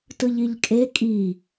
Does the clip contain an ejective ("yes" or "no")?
yes